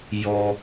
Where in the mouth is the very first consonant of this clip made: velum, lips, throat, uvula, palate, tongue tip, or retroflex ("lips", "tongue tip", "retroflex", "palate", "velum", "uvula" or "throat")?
palate